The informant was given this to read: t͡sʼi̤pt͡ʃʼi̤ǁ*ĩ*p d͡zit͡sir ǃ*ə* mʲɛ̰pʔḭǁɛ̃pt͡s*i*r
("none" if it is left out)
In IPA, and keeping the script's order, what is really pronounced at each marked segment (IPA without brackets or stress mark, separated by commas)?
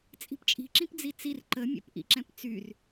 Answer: ĩ, ə, y